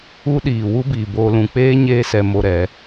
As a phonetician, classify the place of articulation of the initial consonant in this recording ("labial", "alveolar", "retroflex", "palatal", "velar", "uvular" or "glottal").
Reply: alveolar